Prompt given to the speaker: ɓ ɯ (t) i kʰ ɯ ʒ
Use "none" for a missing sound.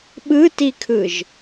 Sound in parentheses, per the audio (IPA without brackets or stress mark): t